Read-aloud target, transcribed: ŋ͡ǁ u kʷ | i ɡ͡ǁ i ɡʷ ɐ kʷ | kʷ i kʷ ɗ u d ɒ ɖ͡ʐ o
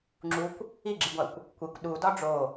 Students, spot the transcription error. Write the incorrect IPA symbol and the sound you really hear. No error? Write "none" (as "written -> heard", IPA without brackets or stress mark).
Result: ɐ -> æ